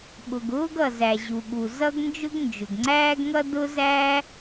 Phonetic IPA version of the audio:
ɓ ʊ˩ ɡ ʊː˥ ɡ ʌ˩ z æ˩ ʑ u˩ ɠ u˩ z ʌ˥ ɡ n d͡ʒ ʊ˥ ɡ n d͡ʒ ʊ˩ ɡ ŋ͡ǀ æː˥ ɡ ŋ ʌ˥ d ʊ˥ z æ˥

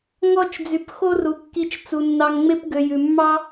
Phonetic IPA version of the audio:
ŋ ɔ˦˨ t͡ʃ d͡z y˨ p x o˦ r u˨ kː i˧ t͡ʃ t͡s u˨ nː ɑ˧ ŋ ŋ͡m e˦ p ɡ ø˨ j ʉ˨ mː ɑ˦

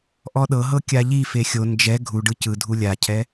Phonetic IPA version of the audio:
ʔ ɔ ɗ ɤ ɦ ɤ kʲ a ʎ i f e xʲ o n d͡ʒ ɛ ɡʱ u ɖ ɯ c ɯ dʱ u lʲ a cʰ ɛ

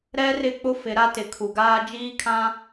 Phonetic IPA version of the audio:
ɾ ɛ˦ r ɪ˦˨ k͡p ʊ˦ f ɪ˨˦ ɾ a˦ t ɪ˨ kʰ u˨ ɡ aː˦ d͡ʒ iː˦ kʰ ã˦

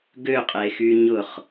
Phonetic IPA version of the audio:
ɡ ø qʼ e x y ɲ ʊ χ

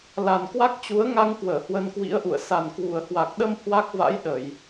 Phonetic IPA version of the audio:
l a˨˩ n k w a˦˥ k̚ t͡ɕ u˨˦ ə̯ ŋ a˧ ŋ k w əː˧˩ h w ə˧ n k w ḭ˧˥ ə̯ ʔ ṵ˧˨ ə̯ s a˨˩ n k w u˨˩ ə̯ h w a˨˩ k̚ ɗ ə˧ m h w a˦˥ k̚ v a̰˧˥ j ɗ ə˧˩˨ j

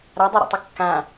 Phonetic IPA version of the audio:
ɾ a dˤ o ɾ o̰ tˤ ɪ kː ã

